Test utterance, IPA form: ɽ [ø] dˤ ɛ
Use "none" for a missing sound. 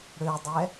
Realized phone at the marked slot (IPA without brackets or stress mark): ø